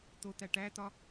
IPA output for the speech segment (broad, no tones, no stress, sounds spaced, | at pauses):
t̪ o t̪ æ ʈ æ t̪ ɒ